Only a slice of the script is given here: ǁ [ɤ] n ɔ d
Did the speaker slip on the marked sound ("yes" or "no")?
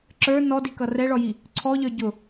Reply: yes